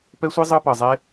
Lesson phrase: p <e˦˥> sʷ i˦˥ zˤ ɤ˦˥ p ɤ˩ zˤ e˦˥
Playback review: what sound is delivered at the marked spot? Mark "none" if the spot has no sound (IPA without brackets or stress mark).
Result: ɛ˦˥